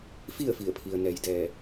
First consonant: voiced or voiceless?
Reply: voiceless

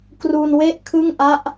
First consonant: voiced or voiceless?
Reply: voiceless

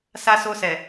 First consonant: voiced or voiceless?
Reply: voiceless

